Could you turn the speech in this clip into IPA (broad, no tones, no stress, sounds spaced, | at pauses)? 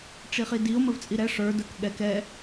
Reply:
ʈ͡ʂ i χ i d i o̯ m ə v t͡sʼ i ɾ ɛ ʂ ə˞ d ə˞ k ɠ ɛ k ɛ